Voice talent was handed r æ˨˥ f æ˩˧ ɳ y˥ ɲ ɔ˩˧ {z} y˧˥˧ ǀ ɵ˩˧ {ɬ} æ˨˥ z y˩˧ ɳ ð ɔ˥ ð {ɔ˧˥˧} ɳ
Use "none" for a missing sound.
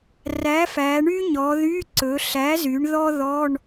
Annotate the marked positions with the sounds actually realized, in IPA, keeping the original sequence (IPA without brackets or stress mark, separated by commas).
ð, ɬ, ɔ˧˥˧